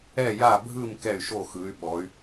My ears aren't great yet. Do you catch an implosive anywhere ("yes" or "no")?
yes